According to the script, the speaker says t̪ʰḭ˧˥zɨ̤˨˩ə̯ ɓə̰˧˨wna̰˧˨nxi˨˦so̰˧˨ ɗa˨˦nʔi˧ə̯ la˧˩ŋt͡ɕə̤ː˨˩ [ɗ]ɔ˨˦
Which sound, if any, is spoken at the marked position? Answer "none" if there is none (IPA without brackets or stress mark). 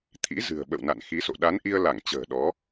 ɗ